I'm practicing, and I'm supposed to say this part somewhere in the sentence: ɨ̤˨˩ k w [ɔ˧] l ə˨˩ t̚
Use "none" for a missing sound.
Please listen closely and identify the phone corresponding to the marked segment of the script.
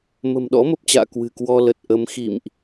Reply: ɔ˧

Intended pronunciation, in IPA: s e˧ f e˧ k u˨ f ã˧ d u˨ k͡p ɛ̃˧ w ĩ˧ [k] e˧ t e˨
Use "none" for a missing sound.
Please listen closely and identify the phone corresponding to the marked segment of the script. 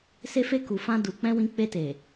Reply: k͡p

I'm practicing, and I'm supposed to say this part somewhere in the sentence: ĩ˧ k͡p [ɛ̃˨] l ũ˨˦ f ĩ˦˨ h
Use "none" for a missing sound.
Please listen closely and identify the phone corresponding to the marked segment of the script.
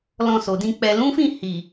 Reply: ɛ˨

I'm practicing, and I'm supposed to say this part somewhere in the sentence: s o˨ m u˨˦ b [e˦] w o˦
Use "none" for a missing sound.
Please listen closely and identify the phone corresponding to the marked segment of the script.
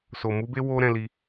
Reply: e˦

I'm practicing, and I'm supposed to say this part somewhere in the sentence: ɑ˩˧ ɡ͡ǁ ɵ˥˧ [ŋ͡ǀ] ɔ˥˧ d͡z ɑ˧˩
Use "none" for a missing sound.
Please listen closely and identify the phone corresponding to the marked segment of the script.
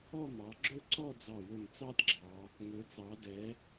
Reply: ǀ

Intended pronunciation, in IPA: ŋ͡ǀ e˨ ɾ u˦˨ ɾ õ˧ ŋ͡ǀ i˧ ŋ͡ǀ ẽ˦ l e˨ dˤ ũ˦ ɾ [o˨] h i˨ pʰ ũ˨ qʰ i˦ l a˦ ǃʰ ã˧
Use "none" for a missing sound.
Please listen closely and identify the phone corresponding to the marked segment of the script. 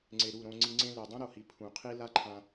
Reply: o˨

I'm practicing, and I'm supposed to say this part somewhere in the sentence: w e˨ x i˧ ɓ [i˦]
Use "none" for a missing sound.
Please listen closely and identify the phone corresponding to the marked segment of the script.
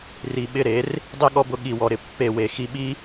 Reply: i˦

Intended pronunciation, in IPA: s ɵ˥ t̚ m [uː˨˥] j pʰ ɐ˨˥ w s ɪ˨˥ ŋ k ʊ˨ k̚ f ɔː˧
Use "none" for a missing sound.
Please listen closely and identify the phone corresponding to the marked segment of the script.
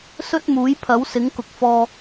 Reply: uː˨˥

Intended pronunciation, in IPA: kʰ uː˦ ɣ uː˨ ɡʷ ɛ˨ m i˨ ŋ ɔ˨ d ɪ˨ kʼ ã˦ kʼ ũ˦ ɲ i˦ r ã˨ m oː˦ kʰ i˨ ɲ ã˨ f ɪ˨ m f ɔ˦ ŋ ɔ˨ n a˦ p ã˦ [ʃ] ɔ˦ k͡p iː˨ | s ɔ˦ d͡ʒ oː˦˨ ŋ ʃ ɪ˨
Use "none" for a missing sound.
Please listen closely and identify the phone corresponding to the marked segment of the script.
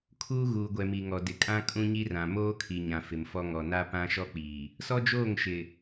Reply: ʃ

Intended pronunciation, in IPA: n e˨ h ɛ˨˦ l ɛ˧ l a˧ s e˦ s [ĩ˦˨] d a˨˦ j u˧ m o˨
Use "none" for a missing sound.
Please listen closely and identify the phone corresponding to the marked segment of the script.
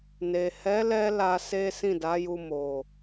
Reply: ĩ˦˨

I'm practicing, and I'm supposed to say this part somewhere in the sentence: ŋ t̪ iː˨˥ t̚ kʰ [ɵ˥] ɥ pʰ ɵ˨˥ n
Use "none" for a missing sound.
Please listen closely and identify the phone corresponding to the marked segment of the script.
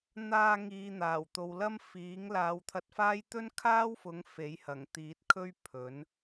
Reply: ɵ˥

